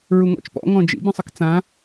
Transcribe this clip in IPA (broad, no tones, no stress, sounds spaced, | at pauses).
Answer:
ɹ u ŋ ɔ̰ t͡ʃ p ɔ̰ ŋ ɔ̃ d͡ʒ ḭ b ĩ sˤ ə k t͡s ã